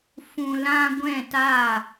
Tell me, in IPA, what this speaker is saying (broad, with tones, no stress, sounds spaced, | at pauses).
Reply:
f ũ˨ l ã˧ ɡʷ ɛ̃˦˨ t a˦˨